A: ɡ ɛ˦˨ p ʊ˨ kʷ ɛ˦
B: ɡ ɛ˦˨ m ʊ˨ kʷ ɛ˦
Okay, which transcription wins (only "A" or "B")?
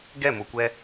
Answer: B